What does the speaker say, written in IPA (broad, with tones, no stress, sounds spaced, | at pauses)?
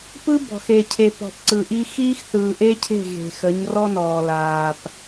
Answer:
p ɯ˦ b ɔ̤˨ x e˨ cʰ e˨ p ɔ̤˨ p ǀ ɯ˨ ʔ i˦ x iː˦ x θ ɯː˨ ʔ e˦ cʰ e̤˦˨ ɣ e̤˨ x ə˨˦ ɲ r ɔ˦ n ɔː˨ l aː˨ p